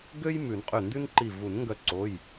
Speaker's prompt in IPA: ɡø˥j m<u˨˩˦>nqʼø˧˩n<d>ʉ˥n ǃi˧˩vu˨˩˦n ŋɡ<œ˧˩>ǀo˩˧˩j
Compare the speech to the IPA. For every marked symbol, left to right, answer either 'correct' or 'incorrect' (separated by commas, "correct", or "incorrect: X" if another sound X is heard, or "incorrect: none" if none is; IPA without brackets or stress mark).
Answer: incorrect: ʉ˨˩˦, correct, correct